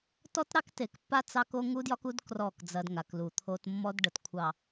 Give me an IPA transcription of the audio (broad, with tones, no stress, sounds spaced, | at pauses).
t ɔ˦ t ɾ ɑ˦ k t e˨ k pː a˦ t͡s ɑ˦ k o˦ ŋ u˦ d j ɒ˦ k u˦ d k r ɔ˦˨ k d͡z ɐ˦ d ŋ a˨ k l u˨ t̪ʰ o˦ t mː ɔ˦ d ɖ ə˨ t kʷʰ ɑ˨